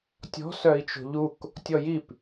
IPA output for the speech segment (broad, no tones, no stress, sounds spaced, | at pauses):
tʲ ɔ̤ s œ i̯ t͡ʃ o̤ ʎ u k | tʲ ɔ j i p